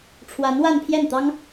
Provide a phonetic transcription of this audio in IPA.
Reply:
ʈ͡ʂʰwa˧˥nwa˥˧npʰjɛ˥˩nt̪ɑ˥ŋ

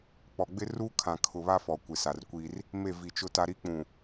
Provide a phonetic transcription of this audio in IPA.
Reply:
k͡pɔ˨ɡ͡bɪ˦ruː˦kʰã˨ kʰʊ˨βa˦ fɔ˨kʷɪ˨ sa˨rkʷi˦r | me˦˨vi˨t͡ʃʊ˦ta˦ ɾi˦k͡pũ˨

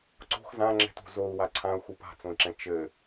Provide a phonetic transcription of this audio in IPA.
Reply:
ǀo̤x zãŋ͡ǁɛ̤to̤ zou̯wa ǀʰãu̯xu pa̤t͡sõi̯ǁɛ̃ t͡ʃɘ

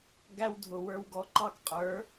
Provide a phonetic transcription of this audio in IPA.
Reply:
ɡæ˦w dʱʊ˨ wə˞˧wɡɔ˧ǃɑ˦k qʼə˞˨˦

